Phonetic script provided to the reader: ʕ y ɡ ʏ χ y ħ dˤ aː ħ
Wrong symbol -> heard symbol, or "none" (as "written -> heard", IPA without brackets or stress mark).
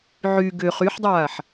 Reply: none